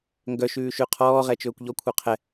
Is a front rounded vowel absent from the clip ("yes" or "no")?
no